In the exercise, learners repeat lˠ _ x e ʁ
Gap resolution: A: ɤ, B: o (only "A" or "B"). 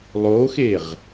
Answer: B